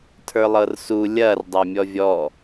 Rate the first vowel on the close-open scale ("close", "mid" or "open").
mid